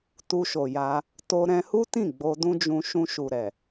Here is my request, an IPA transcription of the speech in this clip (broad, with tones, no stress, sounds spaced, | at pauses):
t u˧ ʃ o˨ j a˧ | t o˧ ɾ ɛ̃˧ h u˦ t ĩ˦˨ ɡ͡b o˧ d ũ˦ d͡ʒ ũ˧ ʃ ũ˧ ʃ u˨ ɾ ɛ˨